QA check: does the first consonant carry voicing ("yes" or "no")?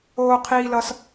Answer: no